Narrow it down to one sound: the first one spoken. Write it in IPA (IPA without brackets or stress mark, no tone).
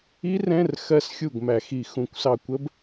i